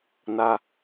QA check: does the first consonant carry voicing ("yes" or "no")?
yes